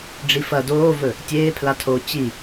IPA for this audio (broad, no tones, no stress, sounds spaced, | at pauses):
ɖ͡ʐ i f ɐ d oː v ɵ | tʲ eː pʰ l a tʰ oː t͡ɕ i